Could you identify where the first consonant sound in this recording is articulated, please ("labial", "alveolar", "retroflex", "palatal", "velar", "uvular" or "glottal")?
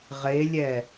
uvular